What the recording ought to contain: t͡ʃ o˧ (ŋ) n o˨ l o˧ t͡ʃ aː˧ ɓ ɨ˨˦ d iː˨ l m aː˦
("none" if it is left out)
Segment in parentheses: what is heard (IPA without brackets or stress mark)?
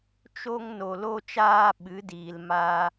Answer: ŋ